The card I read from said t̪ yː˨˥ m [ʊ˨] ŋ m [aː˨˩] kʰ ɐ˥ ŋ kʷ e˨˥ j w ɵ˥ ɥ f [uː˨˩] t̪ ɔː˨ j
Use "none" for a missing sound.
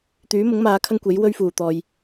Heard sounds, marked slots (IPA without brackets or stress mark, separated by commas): ʊ˨˥, aː˨˧, uː˨˩